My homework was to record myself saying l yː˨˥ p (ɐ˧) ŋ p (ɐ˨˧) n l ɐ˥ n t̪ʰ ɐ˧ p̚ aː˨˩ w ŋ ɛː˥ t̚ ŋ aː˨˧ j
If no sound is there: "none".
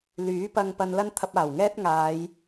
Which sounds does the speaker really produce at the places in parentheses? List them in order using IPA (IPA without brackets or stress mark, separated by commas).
ɐ˧, ɐ˧